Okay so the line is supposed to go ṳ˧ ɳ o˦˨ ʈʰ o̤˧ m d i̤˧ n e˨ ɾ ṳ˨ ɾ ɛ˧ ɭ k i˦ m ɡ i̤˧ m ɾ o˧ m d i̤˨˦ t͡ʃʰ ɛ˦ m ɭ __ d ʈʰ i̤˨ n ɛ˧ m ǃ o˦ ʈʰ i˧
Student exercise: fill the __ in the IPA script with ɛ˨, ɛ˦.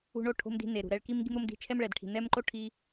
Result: ɛ˨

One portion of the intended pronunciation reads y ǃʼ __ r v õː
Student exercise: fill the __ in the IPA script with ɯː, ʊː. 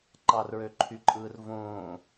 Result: ɯː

